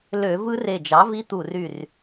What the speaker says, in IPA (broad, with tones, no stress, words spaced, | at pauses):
lø˧˩˧ vɯ˦˥re˧˩d͡ʒɑ˩˥vi˦˥ t̪u˧˩ry˧˩r